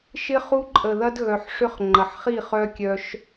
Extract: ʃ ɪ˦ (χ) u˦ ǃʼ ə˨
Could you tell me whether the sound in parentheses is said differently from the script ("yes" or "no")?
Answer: no